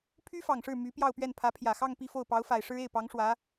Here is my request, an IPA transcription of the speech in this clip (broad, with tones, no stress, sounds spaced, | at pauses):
pʰ y˥ f ɑ˨˩ ŋ ʂ ɻ̩˥˩ m y˧˥ p j ɑ˥˧ ʊ̯ p ɥ ɛ˥˩ n pʰ ä˧˥ pʰ j ä˨˩ x ɑ˥˧ ŋ p i˥˧ f o˥˩ ʊ̯ p ɑ˧˥ ʊ̯ f a˨˩ ɪ̯ ʂ ɻ̩˥ e˥˩ ɪ̯ p ɑ˧˥ ŋ ʂ w ä˧˥